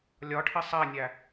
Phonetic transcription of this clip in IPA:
lʲɒʈʰɪ sˤænʲæ

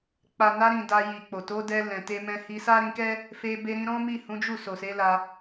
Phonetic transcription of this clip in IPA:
k͡pa˨na˧ɾĩ˨ da˧ji˨k͡po˨ to˨˦dɛ˧ lɛ̃˨te˧mɛ̃˧ hi˧sa˦ ɾĩ˧kɛ˦ | fe˧ be˧ɾĩ˧ ɾɔ̃˦mi˦˨hũ˨˦d͡ʒu˦˨ so˨se˨˦la˧

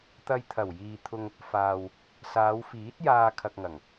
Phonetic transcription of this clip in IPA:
t̪ɐ˧jt̪ʰɐ˨˩wjiː˨t̪ʰʊ˧ŋ | faː˨w | saː˨˧wfiː˨˥t̚jaː˧ kʰɐ˧k̚ŋɐ˨˩ŋ

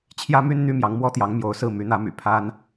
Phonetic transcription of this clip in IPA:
t͡ɕʰjä˥my˥n n̪y˥mjɑ˧˥ŋmwɔ˥t̪jɑ˧˥ŋ mjo˧˥ʊ̯sɹ̩˥˩ my˧˥n̪ä˧˥my̰˨˩ pʰa˥n

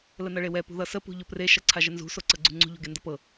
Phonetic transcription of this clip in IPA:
lənʌɭewɛ pṳðʌsə pṳʎopre ʃʌǀʰaʒənzṳ soǀɤɡ͡ǀṳŋ͡ǀṳ ʎo̤ɡendʌpɤ

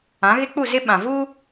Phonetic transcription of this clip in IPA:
ã˨˦ɣɪ˦ k͡pu˦˨zɪ˦ ɓã˨vuː˦

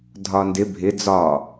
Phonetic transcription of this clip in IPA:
dʱɒndɪ bʱɪ d͡zɒ

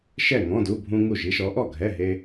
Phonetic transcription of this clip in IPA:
ʃɛ˥˨ŋɔ̃˧˥˧du˧˥˧ bʱũ˥ŋu˥˨ʒ i˥ʃɔ˨˥ʔɔ˥˨ɡʱɛ˧˥˧ ɦe˥

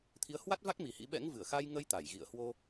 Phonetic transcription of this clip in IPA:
t̪ʰi˨˦ə̯hwa˦˥t̚va˦˥k̚ mi˨˩hḭ˧˥ ɓɛ̰˧˥ŋvɨ˧˩ə̯xa˧j ŋə˧j t̪a˧˩jɣḭ˧˨ə̯ hwo˧

